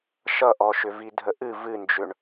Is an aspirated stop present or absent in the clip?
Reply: absent